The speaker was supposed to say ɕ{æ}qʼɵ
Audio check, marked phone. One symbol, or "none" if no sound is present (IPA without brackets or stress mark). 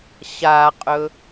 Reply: a